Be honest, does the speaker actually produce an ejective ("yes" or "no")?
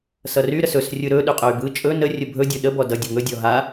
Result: yes